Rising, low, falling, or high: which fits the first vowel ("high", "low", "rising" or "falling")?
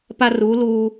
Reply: high